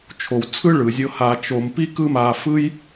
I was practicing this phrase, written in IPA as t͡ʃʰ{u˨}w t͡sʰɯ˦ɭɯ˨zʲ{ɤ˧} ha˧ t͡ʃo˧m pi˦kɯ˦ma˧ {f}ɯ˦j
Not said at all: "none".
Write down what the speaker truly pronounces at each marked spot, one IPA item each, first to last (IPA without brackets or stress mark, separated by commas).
o˨, ɤ˧, f